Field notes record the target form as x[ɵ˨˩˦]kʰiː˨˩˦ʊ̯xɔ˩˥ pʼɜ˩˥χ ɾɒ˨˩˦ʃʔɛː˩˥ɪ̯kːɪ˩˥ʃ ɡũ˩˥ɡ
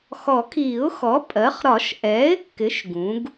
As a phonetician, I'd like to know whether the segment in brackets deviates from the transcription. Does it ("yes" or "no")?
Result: yes